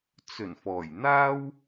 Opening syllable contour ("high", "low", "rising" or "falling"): low